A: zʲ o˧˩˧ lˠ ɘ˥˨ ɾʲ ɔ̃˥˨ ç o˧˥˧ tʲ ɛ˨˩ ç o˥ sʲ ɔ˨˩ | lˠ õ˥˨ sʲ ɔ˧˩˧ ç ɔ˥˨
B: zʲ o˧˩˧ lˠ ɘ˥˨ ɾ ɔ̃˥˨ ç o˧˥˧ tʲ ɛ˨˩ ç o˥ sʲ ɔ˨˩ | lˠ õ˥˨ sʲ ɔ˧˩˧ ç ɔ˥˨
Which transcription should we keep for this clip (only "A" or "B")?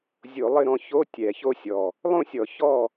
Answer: B